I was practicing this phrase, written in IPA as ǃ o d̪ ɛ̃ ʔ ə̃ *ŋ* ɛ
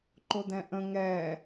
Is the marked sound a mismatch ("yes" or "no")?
no